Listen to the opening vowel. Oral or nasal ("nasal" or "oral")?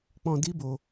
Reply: nasal